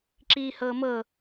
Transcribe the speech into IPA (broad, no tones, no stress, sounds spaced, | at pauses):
ǁ iː h ɤː m ɤ